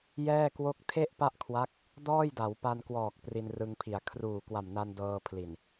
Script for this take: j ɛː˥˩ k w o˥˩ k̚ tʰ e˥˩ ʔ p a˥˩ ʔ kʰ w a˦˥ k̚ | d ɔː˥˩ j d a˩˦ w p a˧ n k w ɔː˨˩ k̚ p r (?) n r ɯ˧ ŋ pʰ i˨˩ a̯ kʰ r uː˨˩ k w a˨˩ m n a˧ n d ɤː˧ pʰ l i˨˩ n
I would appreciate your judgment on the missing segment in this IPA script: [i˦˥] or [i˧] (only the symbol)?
i˧